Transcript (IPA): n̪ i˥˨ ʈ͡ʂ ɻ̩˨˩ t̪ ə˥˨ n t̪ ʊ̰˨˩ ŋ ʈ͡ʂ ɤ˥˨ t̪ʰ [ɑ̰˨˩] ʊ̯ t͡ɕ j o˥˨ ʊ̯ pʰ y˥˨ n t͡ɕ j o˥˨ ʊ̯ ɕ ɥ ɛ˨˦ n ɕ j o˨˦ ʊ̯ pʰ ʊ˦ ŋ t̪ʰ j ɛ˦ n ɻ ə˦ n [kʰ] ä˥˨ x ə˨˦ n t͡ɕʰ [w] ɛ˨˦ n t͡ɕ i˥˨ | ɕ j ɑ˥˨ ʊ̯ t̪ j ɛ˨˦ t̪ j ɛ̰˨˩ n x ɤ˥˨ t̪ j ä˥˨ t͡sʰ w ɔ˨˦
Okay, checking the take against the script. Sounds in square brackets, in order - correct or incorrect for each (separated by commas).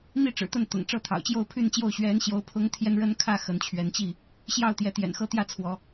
correct, correct, incorrect